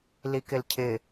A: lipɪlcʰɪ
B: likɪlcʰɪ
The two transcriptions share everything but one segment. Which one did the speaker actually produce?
B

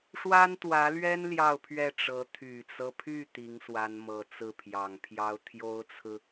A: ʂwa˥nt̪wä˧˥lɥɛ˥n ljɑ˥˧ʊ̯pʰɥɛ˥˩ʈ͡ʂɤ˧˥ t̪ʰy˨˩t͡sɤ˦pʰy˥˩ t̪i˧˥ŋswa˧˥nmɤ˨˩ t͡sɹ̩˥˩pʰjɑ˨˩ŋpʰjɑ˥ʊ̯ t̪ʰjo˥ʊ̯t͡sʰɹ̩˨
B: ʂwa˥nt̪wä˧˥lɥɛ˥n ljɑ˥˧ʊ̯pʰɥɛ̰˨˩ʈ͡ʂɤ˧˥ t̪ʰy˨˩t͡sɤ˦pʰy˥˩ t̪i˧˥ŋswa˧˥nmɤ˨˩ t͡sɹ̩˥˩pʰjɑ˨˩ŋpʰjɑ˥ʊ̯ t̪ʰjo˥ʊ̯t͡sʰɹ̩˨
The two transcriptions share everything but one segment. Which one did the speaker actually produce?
A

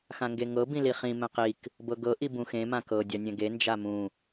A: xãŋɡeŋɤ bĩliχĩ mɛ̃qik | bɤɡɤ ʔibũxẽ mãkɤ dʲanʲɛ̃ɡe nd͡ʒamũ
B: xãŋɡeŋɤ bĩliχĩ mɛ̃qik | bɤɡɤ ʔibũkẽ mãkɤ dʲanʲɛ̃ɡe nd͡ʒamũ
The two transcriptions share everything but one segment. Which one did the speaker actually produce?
A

